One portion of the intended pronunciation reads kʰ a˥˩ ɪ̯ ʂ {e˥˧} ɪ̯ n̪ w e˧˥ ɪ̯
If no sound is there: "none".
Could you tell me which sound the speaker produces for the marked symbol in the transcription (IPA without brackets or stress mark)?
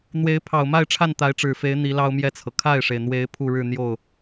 e˩